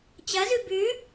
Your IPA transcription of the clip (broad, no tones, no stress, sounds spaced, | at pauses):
t͡ɕ ɐ z ʉ b ʉ